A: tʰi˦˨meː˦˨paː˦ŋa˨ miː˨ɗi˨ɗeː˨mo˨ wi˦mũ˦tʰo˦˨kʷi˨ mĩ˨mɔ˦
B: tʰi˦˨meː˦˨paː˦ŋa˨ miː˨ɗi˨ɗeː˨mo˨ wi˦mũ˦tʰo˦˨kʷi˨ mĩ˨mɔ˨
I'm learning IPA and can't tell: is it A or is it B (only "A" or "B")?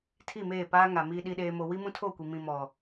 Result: B